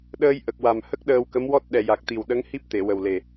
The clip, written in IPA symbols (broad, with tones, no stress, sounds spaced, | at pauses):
ɗ əː˧ j ʔ ə˨˩ k̚ w a˨˩ m h ə˦˥ k̚ ɗ əː˧ w k ə˧˥ m w ɔ˦˥ t̚ ɗ ɛ˨˩ j a˨˩ k̚ t̪ i˨˩ w ɗ ə˧˥ ŋ h i˦˥ p̚ t̪ e˨˩˨ w ə˨˩ w l e˨˩